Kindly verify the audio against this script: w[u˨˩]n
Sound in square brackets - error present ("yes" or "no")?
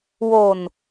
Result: yes